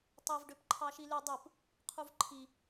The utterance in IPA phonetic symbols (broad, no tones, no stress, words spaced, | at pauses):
tˤev ɖøpǃʰɑʃily dˤɯp | qʰuvǃʰi